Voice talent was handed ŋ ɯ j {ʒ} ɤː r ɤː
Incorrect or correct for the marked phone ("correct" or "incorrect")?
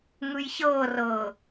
incorrect